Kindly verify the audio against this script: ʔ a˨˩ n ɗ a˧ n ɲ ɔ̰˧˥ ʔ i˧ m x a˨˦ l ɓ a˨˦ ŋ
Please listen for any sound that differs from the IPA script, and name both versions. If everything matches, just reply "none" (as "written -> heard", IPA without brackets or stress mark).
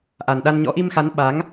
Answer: l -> n